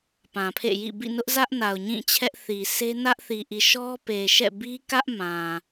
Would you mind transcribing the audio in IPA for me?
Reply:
p ã˨ pʰ ḛ˦˨ j ḭ˦˨ b ḭ˦˨ n ʊ˦ ʔ z ä˦ ʔ n a˨ ʊ̯ ɲ ĩ˦˨ t͡ɕʰ ɛ˦ ʔ θ i˨ sʰ e˦ n ä˦ ʔ θ i˨ ʔ i˨ ʃ ɔ˦ p e˨ ʃ ɛ̰˦˨ b i˦ k ä˦ ʔ m ã˨

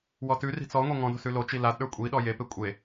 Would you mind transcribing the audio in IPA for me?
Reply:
w ɔ t ʉ r i̤ t͡s ɔ ŋʷ e ŋ ɔ̃ d o̤ s ʉ l o t͡ʃ i l a d ɗ ə˞ kʷʼ i ɗ ɔ j e p e kʷʼ e

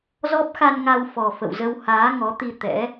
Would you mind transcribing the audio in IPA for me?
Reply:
z ɔ˦˥ p̚ x a˧ n ŋ a˧ w f ɔ˨˩ f ə̰˧˨ w z ə˧ w h aː˨˦ ŋ ɔ˨˦ t̪ i˧ t̪ ɛ̰˧˥

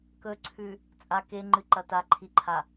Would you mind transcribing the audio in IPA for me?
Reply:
k ɵ ǀʰ ʉ | t͡sʼ a k e ŋ͡ǃ ɨ ǃ ɐ t a ǃʰ i ǃʰ a

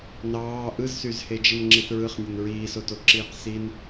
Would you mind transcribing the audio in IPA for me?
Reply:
n ɑː ʔ ɯ z s y z h e d͡ʒ i n ŋ͡ǁ i θ ɹ ɯ χ nʲ e n ɹ iː s o t o ǁ iː q s i n

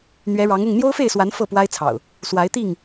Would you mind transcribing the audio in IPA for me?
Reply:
n̪ ɥ ɛ˨˦ ɻ ɑ˨˦ ŋ ʊ˥˨ ŋ n̪ j o˦ ʊ̯ f e˥˨ ɪ̯ s w a˨˦ n f ɤ˥˨ p w a˦ ɪ̯ t͡sʰ ɑ̰˨˩ ʊ̯ | s w a˨˦ ɪ̯ t̪ i˥˨ ŋ

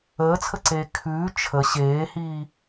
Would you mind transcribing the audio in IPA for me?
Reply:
əː t͡sʰ ə ǀ eː kʰ ʉː t͡ʃʰ ə ɕ eː h iː

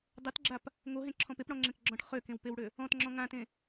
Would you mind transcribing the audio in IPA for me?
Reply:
dˤ ø t ɡ͡ǁ a p | ŋ o ɦ ẽ ǁʰ ɔ̃ p e p ɽ ɔ̃ ŋ͡ǁ ẽ k ɡ͡ǁ ɔ̃ ʈ χ ø k ẽ w p e w ɽ ø | ɔ̃ t ŋ͡ǁ ɔ̃ ŋ ã t ẽ

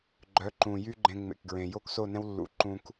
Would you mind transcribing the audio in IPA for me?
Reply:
ɡ͡ǃ œ˨˦ ǃ ũ˨ j y˦ ɡ͡ǃ ẽ˧ ŋ͡m ḛ˨ k ɡ ɹ ẽ˨ j o˦ k s o˦˨ n ɛ̃˦ w lː ṵ˨ ǃ ũ˧ k

